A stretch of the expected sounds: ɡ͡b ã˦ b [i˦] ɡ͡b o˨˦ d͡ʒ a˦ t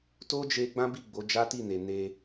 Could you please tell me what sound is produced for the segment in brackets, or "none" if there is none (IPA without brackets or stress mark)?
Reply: i˦˨